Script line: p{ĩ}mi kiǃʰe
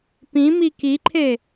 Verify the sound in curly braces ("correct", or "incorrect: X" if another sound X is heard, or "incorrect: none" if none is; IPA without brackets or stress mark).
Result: correct